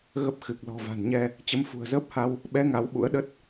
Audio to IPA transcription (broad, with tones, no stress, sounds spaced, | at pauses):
ɣ ə˦˥ p̚ x ɨ˨˩ k̚ l ɔ̤˨˩ v a̤˨˩ n ɲ ɛ˧ | t͡ɕ ə˨˦ m f ṳ˨˩ ə̯ z əː˦˥ p̚ h a˧ w | ɓ ɛ˨˦ ŋ a˨˦ w ɓ ṵ˧˥ ə̯ ɗ ə˦˥ t̚